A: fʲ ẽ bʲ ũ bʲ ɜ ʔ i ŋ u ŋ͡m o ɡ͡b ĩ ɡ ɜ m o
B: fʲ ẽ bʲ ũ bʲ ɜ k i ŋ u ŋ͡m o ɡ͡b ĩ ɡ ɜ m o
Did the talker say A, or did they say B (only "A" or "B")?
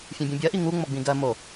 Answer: A